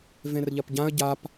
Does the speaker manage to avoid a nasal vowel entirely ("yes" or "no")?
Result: no